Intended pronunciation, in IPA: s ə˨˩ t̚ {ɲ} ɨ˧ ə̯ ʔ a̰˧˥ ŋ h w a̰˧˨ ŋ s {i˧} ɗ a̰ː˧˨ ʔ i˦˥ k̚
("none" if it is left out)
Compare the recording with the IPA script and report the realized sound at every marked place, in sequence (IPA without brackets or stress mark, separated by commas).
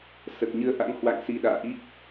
ɲ, i˧